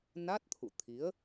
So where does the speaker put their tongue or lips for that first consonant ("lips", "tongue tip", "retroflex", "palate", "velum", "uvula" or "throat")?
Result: tongue tip